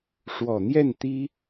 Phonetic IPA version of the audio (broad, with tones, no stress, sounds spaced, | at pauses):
ʂ w ɔ˨˩ n̪ j ɛ˥˩ n t̪ i˥